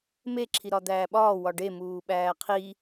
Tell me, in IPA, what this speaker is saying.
m e ǁʰ i ɾ ɒ d̪ æː ɓ ɒː w ɒ ɖ e m uː ɓ æː qʰ i

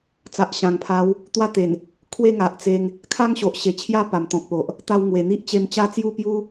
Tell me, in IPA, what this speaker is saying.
t͡s a˨ ʔ ɕ ã˨˩ ŋ pʰ a˨˦ w | t̪ w a˥˧ t̪ e˨˩ n | kʰ w e˥˧ ŋ a˨ ʔ t͡s e˧ ŋ | kʰ a˦ ŋ ɕ o˨ ʔ ɕ e˨˩ t͡ɕʰ j a˥˧ p a˨˩ m t̪ ɔ̃˨ k̚ p o˨ ʔ | t̪ a˧ w ŋ w e˨˩ n̪ i˦ ʔ t͡ɕ e˧ m t͡ɕ a˦ t͡s j u˥˧ p j u˦

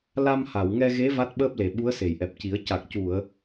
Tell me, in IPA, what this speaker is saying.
l a˧ m h a˨˩˨ w ŋ ɛ˧ ɣ e˧˥ v a˦˥ t̚ ɓ əː˦˥ p̚ l e˨˩ ɓ u˧˥ ə̯ s e˨˩˨ j ʔ ɛ˨˩ p̚ c i˨˩˦ ə̯ c a˨˩ k̚ c u˨˩˨ ə̯

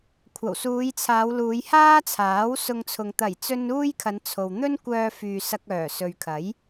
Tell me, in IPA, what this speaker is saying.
kʷʰ ɐ˨˩ w s uː˨˧ j t͡sʰ aː˨˧ w l uː˨˧ j h aː˥ t͡sʰ aː˨˥ w s ʊ˧ ŋ t͡sʰ ʊ˨ ŋ t̪ ɐ˨˩ j t͡s ɵ˧ n uː˥ j kʰ ɐ˨˧ n t͡sʰ o˨ w n̪ ɵ˥ n kʷ œː˧ f yː˨ s ɐ˧ k̚ œː˨˩ s ɵ˨ ɥ kʰ ɐ˨˥ j

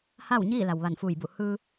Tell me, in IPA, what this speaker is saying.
h a˥˨ w ɲ iː˥˨ l a˩ w ʋ a˧˩ n f uː˧˩ j b u˧˩ h ɯː˧

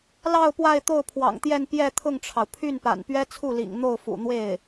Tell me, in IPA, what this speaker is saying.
l ɑ˥˧ ʊ̯ p w a˥˧ ɪ̯ t̪ o˥˩ ʊ̯ pʰ w ɑ̰˨˩ ŋ t̪ j ɛ˥˧ n p j ɛ˥˧ t̪ʰ ʊ˥˩ ŋ ʈ͡ʂʰ ɑ˩ ʊ̯ pʰ y˥˩ n p a̰˨˩ n p ɥ ɛ˥ t͡sʰ u˥˩ l ḭ˨˩ ŋ n̪ o˥˩ ʊ̯ f ṵ˨˩ n̪ w e˥˩ ɪ̯

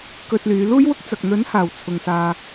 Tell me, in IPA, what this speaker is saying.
k ɵ˧ t̚ l yː˨˧ l uː˥ j w ʊ˥ k̚ t͡s ɐ˨ k̚ n̪ ɵ˨˥ n h aː˨˩ w t͡sʰ ʊ˨ ŋ s aː˧

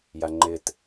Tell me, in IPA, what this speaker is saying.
j a ŋ͡ǃ ɪ t

